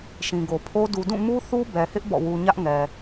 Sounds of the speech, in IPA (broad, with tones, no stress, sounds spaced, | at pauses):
ʃ ĩ˨ ɡ o˨ pʰ o˦ d u˨ d ũ˦˨ m u˦ θ u˦ b ɛ˨ h ɪ˦ ʔ b ɔ̰˦˨ w u˦ ɲ ä˦ ʔ ŋ ɛ˨